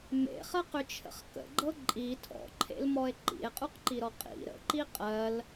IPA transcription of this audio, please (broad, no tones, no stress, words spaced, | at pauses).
mḛχɜqʏt͡ʃʰə̰χ kə̰ɡ͡ǃɤ ǃʼi tʰɔ̰ǃʰḛlmɔe̯ ǃḭe̯qʼuqǃiɾɔ qʼḭ ɾə̰ǃi qʼɜl